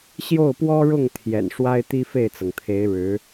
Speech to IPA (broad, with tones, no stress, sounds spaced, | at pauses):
ɕ j o˥˩ ʊ̯ p w ɔ˥ ɻ ʊ˥˩ ŋ t̪ʰ j ɛ̰˨˩ n ʂ w a˥ ɪ̯ t̪ i˥ f e˥˩ ɪ̯ t͡s ɤ˩ ŋ t̪ʰ e˧˥ ɪ̯ ɻ ɻ̩˧˥